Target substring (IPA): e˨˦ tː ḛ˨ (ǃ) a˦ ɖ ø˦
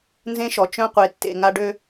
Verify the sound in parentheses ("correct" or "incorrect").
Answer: incorrect